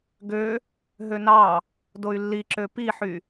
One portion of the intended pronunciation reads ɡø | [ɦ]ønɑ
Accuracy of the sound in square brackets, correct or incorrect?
correct